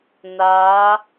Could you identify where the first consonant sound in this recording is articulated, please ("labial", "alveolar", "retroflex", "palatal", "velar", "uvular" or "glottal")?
alveolar